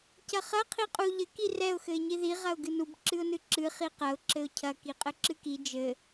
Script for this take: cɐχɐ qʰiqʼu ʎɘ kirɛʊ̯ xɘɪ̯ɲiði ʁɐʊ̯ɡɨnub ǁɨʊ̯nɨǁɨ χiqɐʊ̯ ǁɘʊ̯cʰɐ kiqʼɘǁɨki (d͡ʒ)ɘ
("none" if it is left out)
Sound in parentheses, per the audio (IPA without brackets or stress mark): d͡ʒ